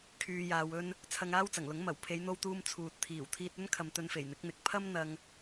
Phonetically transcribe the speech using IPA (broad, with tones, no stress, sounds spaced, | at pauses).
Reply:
kʰ yː˧ j aː˧ w ɵ˥ n | t͡sʰ ɐ˧ ŋ aː˥ w t͡s ɐ˨˩ ŋ l ʊ˨˥ ŋ m ɐ˨˩ w pʰ e˨˧ j n̪ o˧ w t̪ uː˧ m t͡sʰ uː˨ t̚ t̪ʰ iː˨˩ w t̪ʰ iː˧ t̚ ɵ˥ n kʰ ɐ˨ m t̪ ɵ˧ n f e˨˩ j n̪ ɪ˨˥ k̚ n̪ ɪ˨˥ k̚ pʰ ɐ˥ m n̪ ɐ˧ ŋ